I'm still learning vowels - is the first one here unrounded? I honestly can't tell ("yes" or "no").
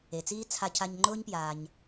yes